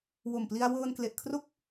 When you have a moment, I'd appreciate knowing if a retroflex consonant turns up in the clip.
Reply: no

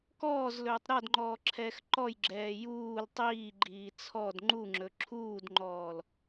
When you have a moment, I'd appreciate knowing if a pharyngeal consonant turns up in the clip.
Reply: no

